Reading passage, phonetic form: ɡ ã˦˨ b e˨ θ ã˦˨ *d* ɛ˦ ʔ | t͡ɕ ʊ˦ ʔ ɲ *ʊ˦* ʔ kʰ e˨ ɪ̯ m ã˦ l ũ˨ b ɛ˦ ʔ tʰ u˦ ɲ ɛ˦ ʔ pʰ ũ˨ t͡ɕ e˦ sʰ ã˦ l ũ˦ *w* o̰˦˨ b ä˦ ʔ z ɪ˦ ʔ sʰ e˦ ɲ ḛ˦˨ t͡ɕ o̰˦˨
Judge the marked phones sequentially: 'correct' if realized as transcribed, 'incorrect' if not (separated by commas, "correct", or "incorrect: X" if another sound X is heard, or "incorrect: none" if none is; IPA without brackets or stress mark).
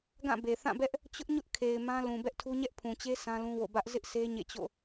incorrect: b, correct, correct